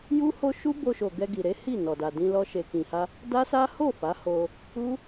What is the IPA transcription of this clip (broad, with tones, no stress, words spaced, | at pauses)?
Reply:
ju˦ho˦ ʃu˦bo˧ʃo˨ ɡɛ˧ɡi˨ɾe˨˦hi˦˨ nɔ˨da˨dĩ˧lɔ˧ ʃe˨kĩ˨ha˧ | da˦sa˦ ho˦˨ fa˨˦ho˧ | u˦